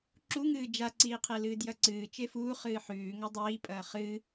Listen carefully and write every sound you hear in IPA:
ǁ u ŋ ɨː d͡ʒ a ǀ iː qʰ e l ɨː d j ɐ ǀ ɨː t͡ʃ e f uː χ ɨː ħ ʉː ŋ ɐ dˤ iː pʼ ɐː χ ɨ

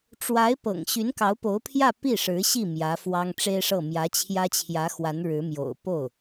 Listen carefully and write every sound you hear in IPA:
ʈ͡ʂ w a˧˥ ɪ̯ p ɤ̰˨˩ ŋ ɕ y˧˥ n k ɑ˧˥ ʊ̯ p o˧˥ ʊ̯ pʰ j ä˥˧ p i˥˩ ʂ ɻ̩˧˥ ɕ i˥˩ m j ä˧˥ f w ɑ˥ ŋ ʈ͡ʂ e˥ ɪ̯ ʂ ɤ˥˩ m j ä˧˥ t͡ɕʰ j ä˥ t͡ɕʰ j ä˧˥ x w a˧˥ n ɻ ɻ̩˧˥ m j o̰˨˩ ʊ̯ p o˥˩ ʊ̯

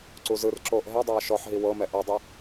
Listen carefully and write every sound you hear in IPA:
ǀ u z ɯ r ǁ oː ʔ ɦ ɛ dˤ aː ʃ ɔ ħ ɦ i w ɤ m ɛ ʔ ɤ dˤ i

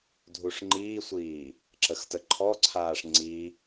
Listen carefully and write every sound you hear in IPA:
dʱ u ʂ ŋ͡ǃ iː sʷ iː | ǁ ə x t ə ǃʰ ɔ ǀʰ aː ʂ ŋ͡ǀ i

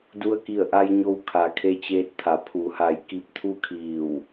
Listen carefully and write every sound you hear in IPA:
d u˧ ə̯ k i˧˩ ə̯ ʔ a˧ j ɲ o˧ w kʰ a˩˧ kʰ e˧ t͡ɕ eː˧ t̚ t̪ʰ a˩˧ pʰ u˩˧ h a˧˩ j k i˧ p̚ t̪ʰ u˥˨ kʰ iː˧˩ w

